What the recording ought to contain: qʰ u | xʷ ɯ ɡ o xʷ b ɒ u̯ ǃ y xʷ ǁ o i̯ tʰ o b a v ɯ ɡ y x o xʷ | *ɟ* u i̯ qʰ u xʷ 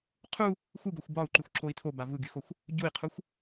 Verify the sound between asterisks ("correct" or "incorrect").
correct